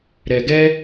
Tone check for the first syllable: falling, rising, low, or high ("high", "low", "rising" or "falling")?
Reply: low